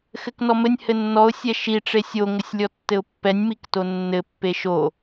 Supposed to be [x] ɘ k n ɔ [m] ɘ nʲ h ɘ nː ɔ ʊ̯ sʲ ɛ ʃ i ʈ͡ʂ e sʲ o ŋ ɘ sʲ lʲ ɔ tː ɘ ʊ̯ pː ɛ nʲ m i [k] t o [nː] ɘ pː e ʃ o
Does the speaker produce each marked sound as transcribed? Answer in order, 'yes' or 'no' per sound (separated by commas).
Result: yes, yes, yes, yes